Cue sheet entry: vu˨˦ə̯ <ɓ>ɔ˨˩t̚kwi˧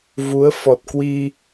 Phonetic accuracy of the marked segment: incorrect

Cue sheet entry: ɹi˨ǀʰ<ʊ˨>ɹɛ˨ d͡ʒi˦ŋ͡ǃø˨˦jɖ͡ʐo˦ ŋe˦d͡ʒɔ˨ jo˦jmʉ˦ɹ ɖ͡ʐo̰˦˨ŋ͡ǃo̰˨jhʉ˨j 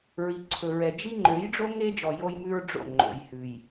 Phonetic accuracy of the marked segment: incorrect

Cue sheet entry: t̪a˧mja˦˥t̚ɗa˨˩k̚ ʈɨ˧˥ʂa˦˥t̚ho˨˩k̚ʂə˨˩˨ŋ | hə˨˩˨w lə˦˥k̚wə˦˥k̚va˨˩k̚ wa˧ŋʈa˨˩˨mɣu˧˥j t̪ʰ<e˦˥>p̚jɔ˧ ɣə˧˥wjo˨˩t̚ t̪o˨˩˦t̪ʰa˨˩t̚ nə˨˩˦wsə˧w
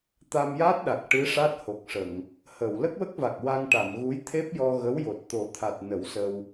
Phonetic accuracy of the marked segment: correct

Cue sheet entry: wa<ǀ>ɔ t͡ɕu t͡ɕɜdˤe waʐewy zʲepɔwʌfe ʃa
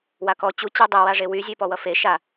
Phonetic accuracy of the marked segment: incorrect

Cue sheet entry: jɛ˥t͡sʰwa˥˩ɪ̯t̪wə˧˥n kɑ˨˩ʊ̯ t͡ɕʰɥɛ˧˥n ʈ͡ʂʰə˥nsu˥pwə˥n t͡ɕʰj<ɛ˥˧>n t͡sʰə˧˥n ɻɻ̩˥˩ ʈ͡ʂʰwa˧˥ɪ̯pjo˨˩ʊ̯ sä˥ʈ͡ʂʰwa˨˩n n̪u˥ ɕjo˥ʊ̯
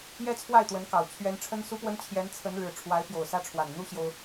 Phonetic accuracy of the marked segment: incorrect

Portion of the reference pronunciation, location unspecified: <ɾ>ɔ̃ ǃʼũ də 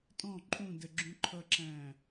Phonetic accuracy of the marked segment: incorrect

